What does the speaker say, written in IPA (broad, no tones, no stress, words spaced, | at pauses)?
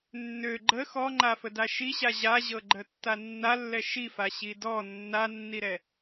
nːø ɡ͡ǃə xɔŋ͡ǃafəda ʃiɕa ʑaʑɤ ɡ͡ǃətːanːalːɛ ʃifa ɕidɔ nːanːiɾɛ